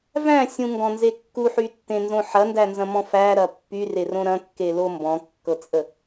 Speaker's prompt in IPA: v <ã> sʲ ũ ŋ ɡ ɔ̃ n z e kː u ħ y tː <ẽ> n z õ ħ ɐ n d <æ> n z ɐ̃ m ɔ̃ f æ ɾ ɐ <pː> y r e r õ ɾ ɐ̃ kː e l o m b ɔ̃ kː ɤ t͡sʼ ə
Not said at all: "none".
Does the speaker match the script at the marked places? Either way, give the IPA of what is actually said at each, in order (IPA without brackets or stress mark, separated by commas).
æ̃, ẽ, æ, pː